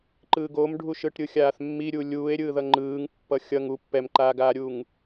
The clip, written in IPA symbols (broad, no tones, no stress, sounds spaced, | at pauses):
ǃ ɯː ɡ o m ɖʱ u ʃ ɯ ʈ ɾʲ ɯ xʲ aː θ mː i ɾʲ u lʲ uː e̯ ɾʲ ɯ ð ʌ ŋ͡ǃ ɯː ŋ pː ʌ xʲ ʌ ŋ u pː ɛ m ǃ aː ɡ aː ɾʲ uː ŋ